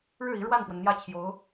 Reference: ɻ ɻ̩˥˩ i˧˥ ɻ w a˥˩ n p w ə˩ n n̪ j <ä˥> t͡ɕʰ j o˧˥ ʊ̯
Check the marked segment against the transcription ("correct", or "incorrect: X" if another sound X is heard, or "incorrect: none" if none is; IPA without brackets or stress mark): correct